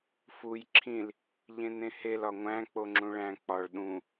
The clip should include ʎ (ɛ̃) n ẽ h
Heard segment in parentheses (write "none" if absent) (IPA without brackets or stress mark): ẽ